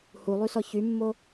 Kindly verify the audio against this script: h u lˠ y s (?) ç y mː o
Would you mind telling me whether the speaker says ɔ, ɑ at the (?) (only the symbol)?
ɔ